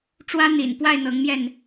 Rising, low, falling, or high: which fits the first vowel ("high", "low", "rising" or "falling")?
high